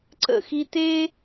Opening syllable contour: falling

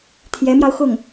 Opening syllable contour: rising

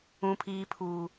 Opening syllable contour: high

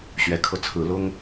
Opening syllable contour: rising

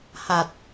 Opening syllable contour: low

